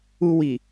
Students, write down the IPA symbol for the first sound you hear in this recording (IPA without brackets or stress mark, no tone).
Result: u